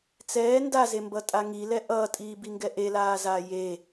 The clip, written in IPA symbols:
t͡s ɛː n d a z e m b ʌ tʼ a ŋ i l ɛ ʔ ʌː tʼ iː b i ŋ ɡ ɛ ʔ e l aː z aː j e

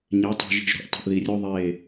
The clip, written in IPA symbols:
ɲ e˨˦ tˤ ṳ˨ ʒ i̤˨ ʒ ɾ ṳ˨ ʔ tˤ i̤˨ ʔ ð i˨ rʲ u˦ ðˤ e˦˨

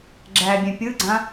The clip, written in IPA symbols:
ɡ͡ǁ æː bʲ ɛ̃ pʲ ɯ ɡ͡ǀ ã

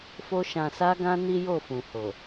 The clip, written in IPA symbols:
f o˧ ʃ ã˨ s a˧ ɡ ã˧ n i˦ j o˦˨ f ũ˨ h o˨

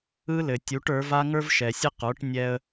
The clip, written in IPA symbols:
ɯ˥ l ɘ˩ tʲ u˩˥ ʈ ə˞˩˥ v a˥ ŋ ə˞˥ v ʃ ɛ˩ sʲ ɘ˥ q ə˞˩˥ ʈ nʲ ɛ˧ ə̯

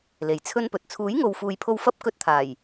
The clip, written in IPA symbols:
l e˨ j t͡sʰ ɵ˥ n p ɵ˨ t̚ t͡sʰ uː˨˥ j ŋ o˨ w f uː˨ j pʰ o˧ w f ɐ˥ p̚ k ɵ˧ t̚ t̪ʰ aː˨˩ j

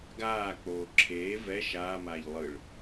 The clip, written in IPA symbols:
ɡ aː k͡p oː ǁʰ eː v ɛ ʃ aː m aː ʎ lˠ ɯ ɭ

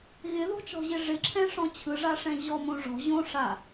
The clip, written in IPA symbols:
ɣ ɪ ð ɔ̤ t͡ʃ ɔ̤ ʑ ɪ ʐ ɪ ǁʰ ɛ̃ ʂ ɔ̃ t͡ɕʰ ɯ ʐ a ʂ ɛ̃ ʑ ɔ m õ ʐ ɔ̤ ʑ õ ʂ a

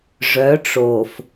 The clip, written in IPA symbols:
ʐ œ˨˦ ʈ͡ʂ o˨ f

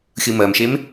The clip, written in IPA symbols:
xʲ ɯ m ɜ m ʃ e m

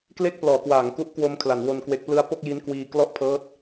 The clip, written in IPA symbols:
k l e˥˩ k̚ p l ɔː˩˦ k w aː˩˦ ŋ k u˦˥ ʔ k w o˧ m kʰ l a˩˦ n w o˧ n k w e˦˥ k̚ p l ɯ˥˩ a̯ p o˥˩ k̚ j i˦˥ n k w iː˧ k l ɔ˥˩ ʔ pʰ ɤː˦˥ t̚

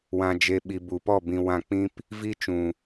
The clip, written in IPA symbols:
w ã˧ d͡ʒ e˧ ɓ i˨ b u˨ p ɔ˦˨ b ĩ˧ w ã˦˨ k͡p ĩ˦ p | v i˦ t͡ʃ ũ˨

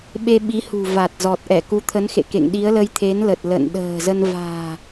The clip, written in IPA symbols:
ɓ e˧ ɓ i˨˦ h ṳ˨˩ v a˨˩ t̚ z ɔ˨˩ t̚ ʔ ɛ˧˩ k u˨˦ t̪ʰ ə˨˦ n x ḛ˧˨ k ḛ˧˨ ŋ ɗ i˨˦ ə̯ l ə˧ j t̪ʰ e˨˦ n l ə˨˩ t̚ l ə̰˧˨ n ɗ ə̤ː˨˩ z ə˧ n v a̤ː˨˩

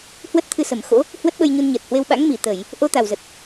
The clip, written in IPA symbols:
h w ə˦˥ t̚ t̪ʰ ɨ˧ s ə˧˩ m x o̰˧˥ | h w ə˦˥ t̚ ɓ ə˧ j ɲ u˧ n ɲ əː˨˩ t̚ h w e˧ w ɓ a̰˧˥ ŋ m i˧˩ t̪ ə˧˩˨ j | ʔ o˧ t̪ a˨˩ w z ə˨˩ t̚

